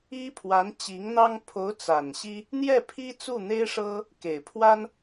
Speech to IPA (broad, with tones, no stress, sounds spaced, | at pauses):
i˥ pʰ w a˧˥ n t͡ɕ i˧˥ ŋ n̪ ɑ˥ ŋ pʰ o˧˥ ʊ̯ t͡s a˨˩ n ɕ i˥ | n̪ j ɛ˥˩ pʰ i˥ t͡s u˥˩ n̪ e˥ ɪ̯ ʂ ɤ˥ | k e˨˩ ɪ̯ pʰ w a˥ n